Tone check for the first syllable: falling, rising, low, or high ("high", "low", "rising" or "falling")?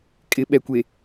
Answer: rising